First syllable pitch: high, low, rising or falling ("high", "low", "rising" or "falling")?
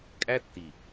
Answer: high